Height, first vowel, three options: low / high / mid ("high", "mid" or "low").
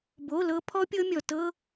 mid